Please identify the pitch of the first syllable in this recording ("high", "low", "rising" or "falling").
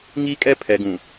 high